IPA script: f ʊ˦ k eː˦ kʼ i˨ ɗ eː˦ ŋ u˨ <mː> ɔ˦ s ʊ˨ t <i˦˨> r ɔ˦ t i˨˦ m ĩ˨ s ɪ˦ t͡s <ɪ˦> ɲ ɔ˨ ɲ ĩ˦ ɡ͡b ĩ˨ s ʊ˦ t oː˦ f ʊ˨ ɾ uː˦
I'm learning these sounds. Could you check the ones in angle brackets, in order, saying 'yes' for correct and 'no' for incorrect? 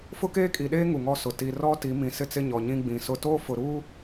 no, no, yes

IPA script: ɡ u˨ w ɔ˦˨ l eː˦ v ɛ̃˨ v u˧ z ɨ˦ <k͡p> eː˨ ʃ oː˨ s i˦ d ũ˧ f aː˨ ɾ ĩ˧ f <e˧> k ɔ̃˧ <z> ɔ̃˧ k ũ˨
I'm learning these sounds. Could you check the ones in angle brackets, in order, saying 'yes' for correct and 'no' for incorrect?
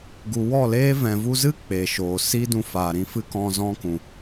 yes, no, yes

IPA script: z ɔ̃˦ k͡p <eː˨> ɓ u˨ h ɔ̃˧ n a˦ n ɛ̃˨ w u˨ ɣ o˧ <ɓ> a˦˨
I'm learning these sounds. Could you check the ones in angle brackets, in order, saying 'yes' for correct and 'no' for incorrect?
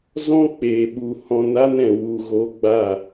yes, no

